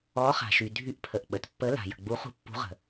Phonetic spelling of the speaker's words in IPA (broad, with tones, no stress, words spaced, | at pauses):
ɔ˨˦χa̤˩ʃy˩ dʱy˨˦ʔpʰə˩ʔ ɓə˩tpːə˨˦la̤˩ jə̤˩ɡ͡bu˨˦χṳ˨˦ pːṳ˨˦ʁə̤˩